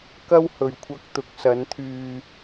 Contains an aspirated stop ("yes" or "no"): yes